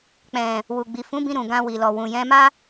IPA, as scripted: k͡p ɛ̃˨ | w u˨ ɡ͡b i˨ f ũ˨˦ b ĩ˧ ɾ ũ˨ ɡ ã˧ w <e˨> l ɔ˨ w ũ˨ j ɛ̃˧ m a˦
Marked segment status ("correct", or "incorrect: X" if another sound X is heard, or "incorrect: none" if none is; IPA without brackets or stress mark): incorrect: i˨